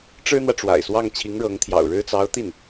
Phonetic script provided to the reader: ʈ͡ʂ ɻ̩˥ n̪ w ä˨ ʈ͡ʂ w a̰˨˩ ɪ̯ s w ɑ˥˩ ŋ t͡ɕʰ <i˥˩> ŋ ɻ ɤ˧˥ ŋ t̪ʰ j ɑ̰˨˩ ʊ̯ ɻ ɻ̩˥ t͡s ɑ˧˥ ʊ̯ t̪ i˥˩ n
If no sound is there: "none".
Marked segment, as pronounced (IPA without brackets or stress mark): i˧˥